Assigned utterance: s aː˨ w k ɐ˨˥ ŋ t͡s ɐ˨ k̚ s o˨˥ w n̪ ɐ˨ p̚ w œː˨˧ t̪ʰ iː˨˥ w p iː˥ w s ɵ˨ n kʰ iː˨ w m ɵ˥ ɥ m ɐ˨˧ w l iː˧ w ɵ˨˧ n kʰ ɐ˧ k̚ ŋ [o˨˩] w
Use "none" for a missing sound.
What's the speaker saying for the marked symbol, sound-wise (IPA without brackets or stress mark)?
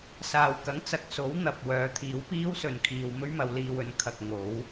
o˨˥